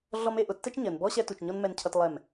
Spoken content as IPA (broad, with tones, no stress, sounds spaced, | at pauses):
ɮ ɔ˦ m e˦ ʔ ʊ˨ tː ɛ˦ t͡ʃ ɲ ɜ˨ n b ɔ˦ ɕ ɛ˦ t u˨ t͡ʃ ɲ ɔ˦ n m ɛ˦ n cʰ ʌ˦ t lˠ ɛ˦˨ m